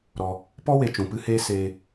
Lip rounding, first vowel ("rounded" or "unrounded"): rounded